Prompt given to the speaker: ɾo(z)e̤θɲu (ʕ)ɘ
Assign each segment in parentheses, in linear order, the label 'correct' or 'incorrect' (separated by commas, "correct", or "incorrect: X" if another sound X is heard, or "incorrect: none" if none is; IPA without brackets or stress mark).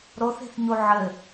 incorrect: θ, correct